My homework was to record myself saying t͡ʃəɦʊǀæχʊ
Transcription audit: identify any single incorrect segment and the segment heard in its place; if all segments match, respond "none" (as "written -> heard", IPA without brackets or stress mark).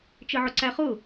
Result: ɦ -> ʕ